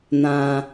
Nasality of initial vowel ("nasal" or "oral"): nasal